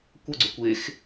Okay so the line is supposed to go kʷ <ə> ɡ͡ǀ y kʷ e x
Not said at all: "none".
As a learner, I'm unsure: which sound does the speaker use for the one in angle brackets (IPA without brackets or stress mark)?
ə